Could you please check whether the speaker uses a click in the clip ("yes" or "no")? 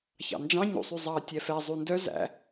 no